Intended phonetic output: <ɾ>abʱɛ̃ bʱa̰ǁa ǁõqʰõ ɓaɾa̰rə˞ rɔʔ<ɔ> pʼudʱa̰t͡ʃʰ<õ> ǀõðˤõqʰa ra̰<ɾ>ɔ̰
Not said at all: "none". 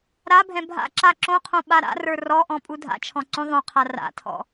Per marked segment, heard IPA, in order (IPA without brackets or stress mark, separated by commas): ɾ, ɔ̃, ɔ̃, tʰ